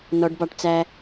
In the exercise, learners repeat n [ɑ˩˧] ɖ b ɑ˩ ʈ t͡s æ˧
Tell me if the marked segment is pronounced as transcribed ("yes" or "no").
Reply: no